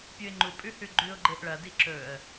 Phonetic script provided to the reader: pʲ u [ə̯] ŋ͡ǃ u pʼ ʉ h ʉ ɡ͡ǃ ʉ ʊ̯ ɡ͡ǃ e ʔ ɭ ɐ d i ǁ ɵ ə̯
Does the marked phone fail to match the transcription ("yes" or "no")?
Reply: yes